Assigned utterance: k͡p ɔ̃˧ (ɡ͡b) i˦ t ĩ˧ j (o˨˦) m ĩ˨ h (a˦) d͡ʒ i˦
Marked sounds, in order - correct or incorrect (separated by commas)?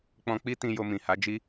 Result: incorrect, incorrect, incorrect